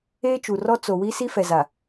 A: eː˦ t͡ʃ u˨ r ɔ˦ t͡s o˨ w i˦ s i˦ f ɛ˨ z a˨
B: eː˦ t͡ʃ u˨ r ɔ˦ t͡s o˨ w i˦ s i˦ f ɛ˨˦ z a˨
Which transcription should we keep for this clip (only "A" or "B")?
A